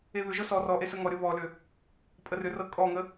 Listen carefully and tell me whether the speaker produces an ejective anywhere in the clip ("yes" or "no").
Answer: yes